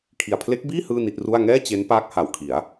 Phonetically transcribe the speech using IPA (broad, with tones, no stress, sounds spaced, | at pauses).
kʰ i˨˩ a̯ pʰ l e˦˥ k̚ b iː˥˩ h ɯː˥˩ n i˥˩ t̚ r u˥˩ a̯ ŋ ɛː˥˩ t͡ɕ e˦˥ n p aː˦˥ k̚ h a˨˩ w kʰ i˩˦ a̯